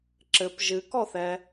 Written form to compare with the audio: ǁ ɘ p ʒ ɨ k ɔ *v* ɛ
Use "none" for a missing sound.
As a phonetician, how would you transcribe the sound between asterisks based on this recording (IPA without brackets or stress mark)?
θ